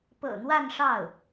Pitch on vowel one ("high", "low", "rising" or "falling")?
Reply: low